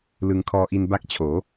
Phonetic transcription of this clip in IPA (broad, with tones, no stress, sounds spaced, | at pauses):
l ɯ˧ ŋ kʰ ɔː˧ ʔ i˧ n b a˥˩ k̚ t͡ɕʰ oː˩˦